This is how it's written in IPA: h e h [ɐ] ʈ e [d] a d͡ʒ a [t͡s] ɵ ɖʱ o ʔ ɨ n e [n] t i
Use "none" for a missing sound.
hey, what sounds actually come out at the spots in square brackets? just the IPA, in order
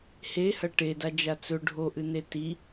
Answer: ɐ, d, t͡s, none

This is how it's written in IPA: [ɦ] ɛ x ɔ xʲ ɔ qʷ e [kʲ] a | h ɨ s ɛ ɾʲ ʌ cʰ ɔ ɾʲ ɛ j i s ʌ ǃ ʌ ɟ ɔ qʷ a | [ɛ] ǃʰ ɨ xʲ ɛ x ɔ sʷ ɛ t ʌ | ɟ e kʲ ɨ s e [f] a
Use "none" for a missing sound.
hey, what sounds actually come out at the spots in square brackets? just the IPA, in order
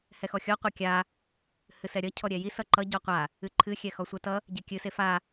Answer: h, kʲ, ɨ, f

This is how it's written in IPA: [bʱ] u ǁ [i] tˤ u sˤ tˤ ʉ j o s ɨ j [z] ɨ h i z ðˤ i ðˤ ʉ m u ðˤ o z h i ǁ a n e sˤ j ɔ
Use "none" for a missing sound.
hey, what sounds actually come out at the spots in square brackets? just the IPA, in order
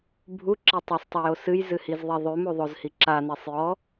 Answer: bʱ, e, z

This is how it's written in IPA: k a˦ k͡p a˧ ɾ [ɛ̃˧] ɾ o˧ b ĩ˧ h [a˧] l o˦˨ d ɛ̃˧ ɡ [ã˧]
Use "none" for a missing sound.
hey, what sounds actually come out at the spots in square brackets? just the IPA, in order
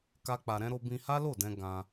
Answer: ɛ̃˧, a˦, ã˧

